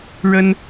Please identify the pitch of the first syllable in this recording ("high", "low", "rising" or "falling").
high